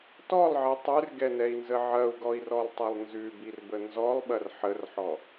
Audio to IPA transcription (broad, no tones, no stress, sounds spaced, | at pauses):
t ɔ lˠ ʕ i tˤ ʉ r ɡ ɛ n ɛ i̯ n z ə ʕ ɐ u̯ ɡ ɔ i̯ r ɔ lˠ tˤ ɛ lˠ n z ʉ b i r b ə n z ɔ lˠ ɓ ɐ r ħ ə r ħ ɔ